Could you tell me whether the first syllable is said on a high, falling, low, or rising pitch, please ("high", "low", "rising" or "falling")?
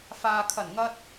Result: low